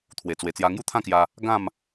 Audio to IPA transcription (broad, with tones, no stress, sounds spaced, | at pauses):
t̪ʰ w e˨˩ t͡s w e˨˩ t͡s j a˧ ŋ j u˥˧ t̪ʰ ã˥˧ k j a˧ | ɡ ã˥˧ m